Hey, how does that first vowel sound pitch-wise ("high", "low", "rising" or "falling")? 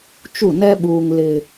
falling